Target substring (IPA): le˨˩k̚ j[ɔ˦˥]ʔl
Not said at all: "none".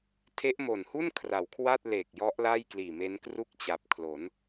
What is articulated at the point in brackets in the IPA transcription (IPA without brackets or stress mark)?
ɔ˦˥